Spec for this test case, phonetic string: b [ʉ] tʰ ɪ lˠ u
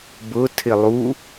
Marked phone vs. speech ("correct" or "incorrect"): incorrect